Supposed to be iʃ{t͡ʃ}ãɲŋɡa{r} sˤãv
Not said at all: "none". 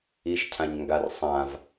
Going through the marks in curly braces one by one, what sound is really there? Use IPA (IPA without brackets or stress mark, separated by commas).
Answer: cʰ, r